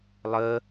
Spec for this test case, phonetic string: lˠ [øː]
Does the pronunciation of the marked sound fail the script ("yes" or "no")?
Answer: yes